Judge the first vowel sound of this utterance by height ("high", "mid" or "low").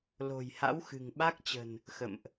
mid